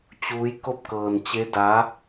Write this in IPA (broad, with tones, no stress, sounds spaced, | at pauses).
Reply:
t͡ɕ uː˧˥ j k o˥˨ p̚ k ɤː˧ n t͡ɕ e˧˥ d aː˧˥